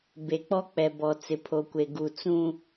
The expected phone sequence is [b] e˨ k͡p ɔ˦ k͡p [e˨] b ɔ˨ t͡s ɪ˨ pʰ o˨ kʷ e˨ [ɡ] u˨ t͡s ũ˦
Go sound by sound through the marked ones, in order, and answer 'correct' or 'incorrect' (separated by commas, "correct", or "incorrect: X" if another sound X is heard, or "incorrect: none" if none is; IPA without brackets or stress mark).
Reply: correct, incorrect: ɛ˨, correct